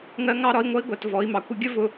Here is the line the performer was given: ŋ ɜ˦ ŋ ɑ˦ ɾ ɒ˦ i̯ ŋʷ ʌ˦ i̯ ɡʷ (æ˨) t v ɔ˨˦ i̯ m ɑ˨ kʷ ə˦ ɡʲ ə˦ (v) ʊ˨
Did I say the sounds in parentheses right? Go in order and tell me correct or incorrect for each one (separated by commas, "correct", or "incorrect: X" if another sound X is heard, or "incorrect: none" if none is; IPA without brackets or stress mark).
correct, correct